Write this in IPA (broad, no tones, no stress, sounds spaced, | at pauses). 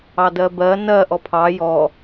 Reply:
ɑ d ɜ b ɜ n ɜ ʔ ɔ pʰ ɑ j ɔ